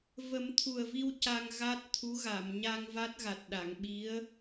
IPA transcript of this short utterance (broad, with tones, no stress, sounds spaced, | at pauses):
v ə˨˩˦ m t̪ʰ u˨˩ ə̯ v i˧ w c a˧ ŋ ɣ a˦˥ t̚ t̪ʰ u˧˥ ɣ a˨˩˨ m ɲ a˧ ŋ v a˦˥ t̚ ɣ a˨˩ t̚ ɗ a˨˩˨ ŋ ɓ i˧˥ ə̯